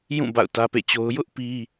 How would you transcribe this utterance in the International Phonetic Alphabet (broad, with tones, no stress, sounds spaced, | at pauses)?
j ũ˦˨ b a̰˦˨ ʊ̯ t ä˦ p ḛ˦˨ t͡ɕ o˦ ʊ̯ j ʊ˦ ʔ p i˦